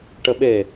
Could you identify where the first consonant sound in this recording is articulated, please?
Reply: retroflex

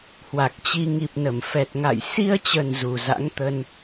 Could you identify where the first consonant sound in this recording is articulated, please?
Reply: glottal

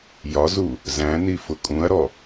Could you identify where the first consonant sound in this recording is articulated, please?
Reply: palatal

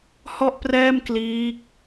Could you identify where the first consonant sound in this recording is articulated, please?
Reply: glottal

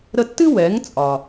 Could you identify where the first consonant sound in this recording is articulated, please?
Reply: alveolar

